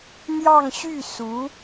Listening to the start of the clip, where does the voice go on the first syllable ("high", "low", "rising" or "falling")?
falling